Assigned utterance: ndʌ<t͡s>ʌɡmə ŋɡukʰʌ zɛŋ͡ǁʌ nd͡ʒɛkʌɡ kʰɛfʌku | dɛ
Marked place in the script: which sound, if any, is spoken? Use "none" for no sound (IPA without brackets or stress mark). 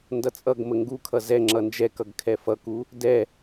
t͡sʼ